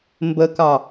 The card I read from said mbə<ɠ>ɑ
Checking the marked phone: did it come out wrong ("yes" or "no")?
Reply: yes